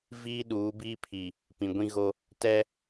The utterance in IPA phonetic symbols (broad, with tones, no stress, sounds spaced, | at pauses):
v iː˦ ɗ uː˨˦ b iː˦ pʰ i˨ | p ĩ˨ ɡʷ ĩ˦ ɣ o˦ | t ɛ˦